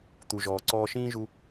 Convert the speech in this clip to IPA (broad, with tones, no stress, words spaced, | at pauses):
t̪u˩ʒɔː˩ ǀɔː˧ʃĩː˥ʒu˧